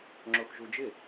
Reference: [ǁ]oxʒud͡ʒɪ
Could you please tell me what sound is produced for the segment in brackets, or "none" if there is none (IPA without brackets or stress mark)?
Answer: ŋ͡ǁ